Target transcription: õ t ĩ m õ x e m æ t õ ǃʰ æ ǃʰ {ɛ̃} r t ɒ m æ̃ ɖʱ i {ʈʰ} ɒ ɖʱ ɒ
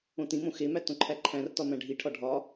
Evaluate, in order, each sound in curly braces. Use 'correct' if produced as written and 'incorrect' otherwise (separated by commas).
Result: incorrect, correct